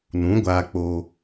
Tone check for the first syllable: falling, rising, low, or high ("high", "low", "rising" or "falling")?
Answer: rising